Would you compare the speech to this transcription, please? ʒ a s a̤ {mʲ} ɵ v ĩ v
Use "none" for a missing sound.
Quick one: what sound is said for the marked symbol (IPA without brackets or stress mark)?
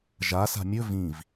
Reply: mʲ